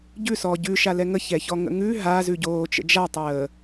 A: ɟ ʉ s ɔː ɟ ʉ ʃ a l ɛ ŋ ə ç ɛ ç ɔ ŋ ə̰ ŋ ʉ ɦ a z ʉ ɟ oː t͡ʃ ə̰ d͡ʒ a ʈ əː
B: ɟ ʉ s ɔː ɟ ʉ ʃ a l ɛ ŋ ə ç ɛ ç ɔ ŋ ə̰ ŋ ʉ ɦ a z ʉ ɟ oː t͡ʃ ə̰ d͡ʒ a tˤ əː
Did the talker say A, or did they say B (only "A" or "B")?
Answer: B